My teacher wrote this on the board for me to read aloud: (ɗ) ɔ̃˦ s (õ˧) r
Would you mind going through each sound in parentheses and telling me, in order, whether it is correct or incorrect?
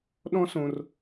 correct, correct

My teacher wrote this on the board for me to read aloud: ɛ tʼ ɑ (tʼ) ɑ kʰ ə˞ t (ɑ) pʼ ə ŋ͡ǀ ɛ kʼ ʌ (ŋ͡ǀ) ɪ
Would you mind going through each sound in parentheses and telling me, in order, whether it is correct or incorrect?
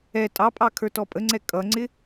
incorrect: pʼ, incorrect: ɔ, correct

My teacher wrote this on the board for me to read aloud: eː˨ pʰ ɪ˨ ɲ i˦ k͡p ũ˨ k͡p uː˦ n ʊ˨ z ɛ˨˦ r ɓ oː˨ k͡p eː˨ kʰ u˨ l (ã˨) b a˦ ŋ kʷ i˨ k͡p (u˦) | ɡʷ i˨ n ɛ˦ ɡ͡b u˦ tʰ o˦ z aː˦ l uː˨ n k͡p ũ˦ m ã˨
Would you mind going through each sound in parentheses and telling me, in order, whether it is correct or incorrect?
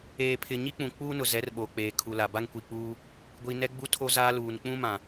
incorrect: a˨, incorrect: uː˦

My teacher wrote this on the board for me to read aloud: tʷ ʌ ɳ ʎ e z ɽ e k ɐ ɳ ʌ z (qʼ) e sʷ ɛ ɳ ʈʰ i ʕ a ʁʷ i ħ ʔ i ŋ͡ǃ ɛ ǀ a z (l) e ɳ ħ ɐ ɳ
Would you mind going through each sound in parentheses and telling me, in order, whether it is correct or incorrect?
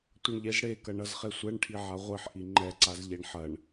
incorrect: χ, incorrect: ʎ

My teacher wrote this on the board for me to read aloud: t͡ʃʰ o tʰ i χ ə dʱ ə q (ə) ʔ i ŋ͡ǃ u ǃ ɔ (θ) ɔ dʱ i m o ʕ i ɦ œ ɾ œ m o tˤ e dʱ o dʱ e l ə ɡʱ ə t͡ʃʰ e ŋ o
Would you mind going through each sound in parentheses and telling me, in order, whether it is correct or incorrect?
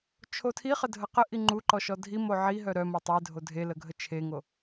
correct, incorrect: ʃ

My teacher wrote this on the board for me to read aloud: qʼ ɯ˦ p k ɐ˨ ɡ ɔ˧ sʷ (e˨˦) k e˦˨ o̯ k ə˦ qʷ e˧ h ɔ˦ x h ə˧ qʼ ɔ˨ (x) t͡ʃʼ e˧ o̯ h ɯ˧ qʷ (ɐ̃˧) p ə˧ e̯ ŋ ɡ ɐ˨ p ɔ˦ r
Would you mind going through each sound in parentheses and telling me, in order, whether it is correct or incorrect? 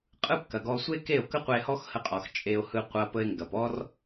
incorrect: e˦, correct, incorrect: ɐ˧

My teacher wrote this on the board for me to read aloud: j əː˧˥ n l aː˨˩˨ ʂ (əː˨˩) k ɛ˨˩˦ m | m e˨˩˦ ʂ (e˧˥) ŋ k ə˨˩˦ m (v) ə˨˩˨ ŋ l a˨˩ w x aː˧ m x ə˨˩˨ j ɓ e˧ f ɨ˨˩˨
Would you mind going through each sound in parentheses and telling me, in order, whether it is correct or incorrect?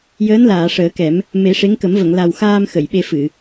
incorrect: əː˨˩˦, correct, correct

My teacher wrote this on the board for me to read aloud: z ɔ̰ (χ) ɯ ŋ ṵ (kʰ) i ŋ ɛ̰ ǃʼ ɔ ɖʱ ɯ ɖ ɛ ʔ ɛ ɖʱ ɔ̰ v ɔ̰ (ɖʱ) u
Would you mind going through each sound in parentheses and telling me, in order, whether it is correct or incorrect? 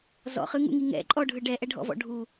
correct, incorrect: ŋ, correct

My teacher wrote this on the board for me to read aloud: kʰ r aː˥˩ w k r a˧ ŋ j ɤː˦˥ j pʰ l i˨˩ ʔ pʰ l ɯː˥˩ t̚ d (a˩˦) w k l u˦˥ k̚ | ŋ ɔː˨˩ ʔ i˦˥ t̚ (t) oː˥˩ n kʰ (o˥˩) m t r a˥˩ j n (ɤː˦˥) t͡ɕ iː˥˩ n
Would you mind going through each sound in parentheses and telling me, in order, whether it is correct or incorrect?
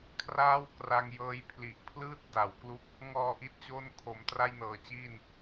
correct, incorrect: t͡ɕ, incorrect: o˩˦, incorrect: ɤː˨˩

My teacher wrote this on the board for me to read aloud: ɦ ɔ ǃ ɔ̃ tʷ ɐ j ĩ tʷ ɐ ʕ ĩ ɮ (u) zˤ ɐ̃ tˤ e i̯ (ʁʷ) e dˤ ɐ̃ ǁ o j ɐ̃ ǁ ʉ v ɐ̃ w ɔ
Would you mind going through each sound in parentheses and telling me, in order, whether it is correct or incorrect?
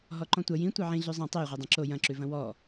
incorrect: ʉ, correct

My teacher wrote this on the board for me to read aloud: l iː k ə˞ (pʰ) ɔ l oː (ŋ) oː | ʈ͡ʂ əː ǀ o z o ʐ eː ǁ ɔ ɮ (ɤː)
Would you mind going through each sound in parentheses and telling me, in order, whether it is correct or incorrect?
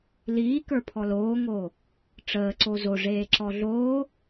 correct, correct, incorrect: oː

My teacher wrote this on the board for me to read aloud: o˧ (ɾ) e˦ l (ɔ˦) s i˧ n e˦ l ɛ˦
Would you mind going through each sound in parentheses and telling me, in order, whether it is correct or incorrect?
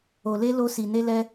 incorrect: l, incorrect: o˦

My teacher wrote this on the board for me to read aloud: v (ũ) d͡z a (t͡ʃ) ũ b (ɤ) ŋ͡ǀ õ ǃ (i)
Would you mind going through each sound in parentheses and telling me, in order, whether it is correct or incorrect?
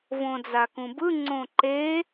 incorrect: õ, incorrect: k, incorrect: ɯ, incorrect: e

